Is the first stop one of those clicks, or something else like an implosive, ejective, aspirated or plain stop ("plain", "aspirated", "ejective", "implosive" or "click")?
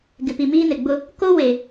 plain